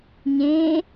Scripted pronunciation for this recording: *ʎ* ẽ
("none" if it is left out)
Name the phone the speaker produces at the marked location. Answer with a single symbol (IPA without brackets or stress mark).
ɲ